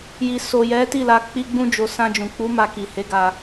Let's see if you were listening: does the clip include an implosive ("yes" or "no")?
no